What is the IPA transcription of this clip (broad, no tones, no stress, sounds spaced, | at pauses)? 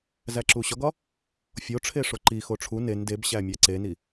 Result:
z æ ǁ u ɕ ɒ ɡ ɒ | fʲ o ʈ͡ʂʰ e ʂ o ǃ i x o ʈ͡ʂʰ u n e n d e b ɕ æ mʲ æ ǀ e n i